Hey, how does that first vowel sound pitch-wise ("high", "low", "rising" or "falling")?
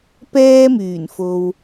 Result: high